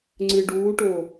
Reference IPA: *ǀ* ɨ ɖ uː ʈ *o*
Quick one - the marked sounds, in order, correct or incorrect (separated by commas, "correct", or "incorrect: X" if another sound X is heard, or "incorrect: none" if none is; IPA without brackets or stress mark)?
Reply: incorrect: ŋ͡ǀ, correct